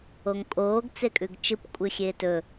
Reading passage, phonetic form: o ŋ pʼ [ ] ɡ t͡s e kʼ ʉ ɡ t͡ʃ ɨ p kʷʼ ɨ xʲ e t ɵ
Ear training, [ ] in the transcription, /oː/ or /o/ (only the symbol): oː